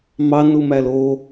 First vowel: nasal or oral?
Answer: oral